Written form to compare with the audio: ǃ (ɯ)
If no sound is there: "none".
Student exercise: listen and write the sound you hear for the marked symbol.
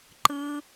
ɯ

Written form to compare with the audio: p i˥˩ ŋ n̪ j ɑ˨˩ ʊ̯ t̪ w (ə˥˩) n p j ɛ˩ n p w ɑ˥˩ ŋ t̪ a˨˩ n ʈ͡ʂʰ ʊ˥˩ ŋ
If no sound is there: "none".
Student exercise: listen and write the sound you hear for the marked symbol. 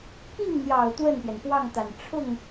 ə˥˩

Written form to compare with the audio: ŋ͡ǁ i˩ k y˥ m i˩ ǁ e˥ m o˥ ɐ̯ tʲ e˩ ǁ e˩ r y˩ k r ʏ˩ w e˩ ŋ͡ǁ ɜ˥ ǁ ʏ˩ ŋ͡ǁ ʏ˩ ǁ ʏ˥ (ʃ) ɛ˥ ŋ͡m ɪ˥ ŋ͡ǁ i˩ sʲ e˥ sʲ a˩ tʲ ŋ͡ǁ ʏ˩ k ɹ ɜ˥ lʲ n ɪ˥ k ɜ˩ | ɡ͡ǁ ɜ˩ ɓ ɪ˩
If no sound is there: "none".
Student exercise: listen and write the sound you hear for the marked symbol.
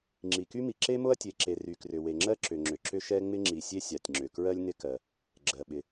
ʃ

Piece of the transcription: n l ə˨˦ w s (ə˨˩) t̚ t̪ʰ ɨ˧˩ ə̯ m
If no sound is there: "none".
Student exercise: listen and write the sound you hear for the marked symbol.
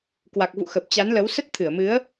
ə˦˥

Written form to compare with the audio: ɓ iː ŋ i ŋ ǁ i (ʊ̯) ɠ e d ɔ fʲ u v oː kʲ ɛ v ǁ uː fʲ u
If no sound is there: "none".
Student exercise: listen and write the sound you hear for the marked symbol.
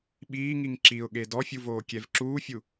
ʊ̯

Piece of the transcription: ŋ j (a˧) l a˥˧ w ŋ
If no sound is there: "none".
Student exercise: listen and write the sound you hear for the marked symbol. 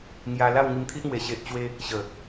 a˧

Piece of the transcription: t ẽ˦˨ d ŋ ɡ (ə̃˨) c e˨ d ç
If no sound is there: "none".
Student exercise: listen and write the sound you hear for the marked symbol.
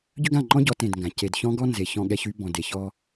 ã˨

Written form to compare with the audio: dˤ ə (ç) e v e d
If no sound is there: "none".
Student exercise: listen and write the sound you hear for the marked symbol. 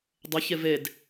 ç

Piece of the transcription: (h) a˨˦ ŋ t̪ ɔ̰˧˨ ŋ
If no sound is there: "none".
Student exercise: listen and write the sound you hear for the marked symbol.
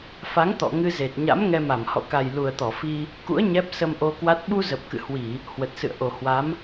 f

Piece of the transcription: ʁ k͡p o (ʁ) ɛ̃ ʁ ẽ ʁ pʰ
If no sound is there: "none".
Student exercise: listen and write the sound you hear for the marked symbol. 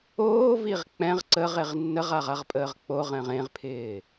ʁ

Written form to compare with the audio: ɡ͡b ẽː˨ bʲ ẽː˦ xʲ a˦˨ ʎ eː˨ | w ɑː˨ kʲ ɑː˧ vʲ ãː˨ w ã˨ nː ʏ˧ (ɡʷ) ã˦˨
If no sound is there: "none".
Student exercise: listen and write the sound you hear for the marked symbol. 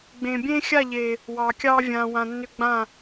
ɡ͡b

